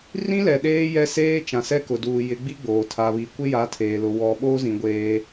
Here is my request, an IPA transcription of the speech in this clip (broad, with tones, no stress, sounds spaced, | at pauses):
r ĩ˦ l ɛ˨ ɗ eː˦ j ɛ˦ s eː˦ t͡ʃ ã˨ s ɛ˦ k ʊ˨ d uː˨ j ɪ˨˦ ɡ͡b i˦ ɡ͡b oː˨ tʰ a˨ β i˨ kʷ ɪ˦ j a˨˦ tʰ eː˨ l ʊ˨ w ɔ˨ ɓ oː˦ z ĩ˨ ɡʷ eː˦